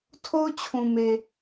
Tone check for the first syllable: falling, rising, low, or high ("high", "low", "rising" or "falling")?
high